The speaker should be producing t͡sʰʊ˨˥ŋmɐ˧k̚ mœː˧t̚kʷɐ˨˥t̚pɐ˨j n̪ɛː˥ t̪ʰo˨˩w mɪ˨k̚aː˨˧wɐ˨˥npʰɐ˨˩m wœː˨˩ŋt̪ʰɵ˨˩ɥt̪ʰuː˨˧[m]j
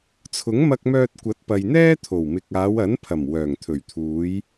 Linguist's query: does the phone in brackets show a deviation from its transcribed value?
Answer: yes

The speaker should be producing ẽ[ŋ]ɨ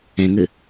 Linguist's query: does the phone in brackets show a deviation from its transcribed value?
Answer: no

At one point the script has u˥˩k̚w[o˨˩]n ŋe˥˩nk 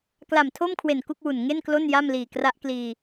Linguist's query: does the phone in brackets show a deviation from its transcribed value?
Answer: yes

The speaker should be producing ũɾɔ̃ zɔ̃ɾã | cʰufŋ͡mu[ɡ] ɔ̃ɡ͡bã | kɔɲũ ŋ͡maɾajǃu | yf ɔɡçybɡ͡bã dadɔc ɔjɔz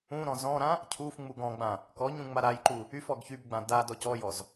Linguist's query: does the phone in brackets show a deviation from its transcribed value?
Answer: no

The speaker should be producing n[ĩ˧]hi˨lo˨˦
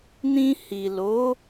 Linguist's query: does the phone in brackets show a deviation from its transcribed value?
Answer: no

